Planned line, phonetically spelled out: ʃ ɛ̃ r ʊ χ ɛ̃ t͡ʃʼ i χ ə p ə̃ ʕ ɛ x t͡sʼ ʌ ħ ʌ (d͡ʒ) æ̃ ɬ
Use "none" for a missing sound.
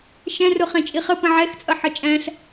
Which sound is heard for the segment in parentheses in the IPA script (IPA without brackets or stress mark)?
t͡ʃʼ